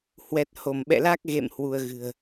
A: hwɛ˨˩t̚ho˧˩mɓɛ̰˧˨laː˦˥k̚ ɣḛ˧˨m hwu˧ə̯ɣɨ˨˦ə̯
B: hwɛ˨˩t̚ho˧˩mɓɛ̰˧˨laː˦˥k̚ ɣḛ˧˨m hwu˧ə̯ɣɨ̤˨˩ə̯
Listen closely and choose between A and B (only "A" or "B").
B